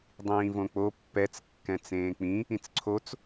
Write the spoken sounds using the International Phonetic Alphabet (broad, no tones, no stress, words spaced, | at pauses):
dˤĩːvõk͡po pːɛt͡s kːɛ̃t͡sẽːk͡pĩ | ĩt͡sǀʰot͡s